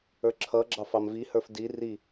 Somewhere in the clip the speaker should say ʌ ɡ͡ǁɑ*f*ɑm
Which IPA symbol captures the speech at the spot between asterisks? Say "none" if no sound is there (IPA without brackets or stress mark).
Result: f